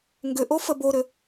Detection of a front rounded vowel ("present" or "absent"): present